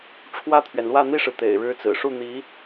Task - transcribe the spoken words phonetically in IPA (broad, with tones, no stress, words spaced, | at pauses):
ʈ͡ʂʰwä˥˩t̪ʰɥɛ˩nlwä˥˧ n̪i˥˩ʂɻ̩˩ t̪ḛ˨˩ɪ̯ɻɻ̩˥t͡sɹ̩˨˩ ʂu˥˩n̪i˧˥